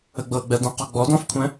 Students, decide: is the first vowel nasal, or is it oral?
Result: oral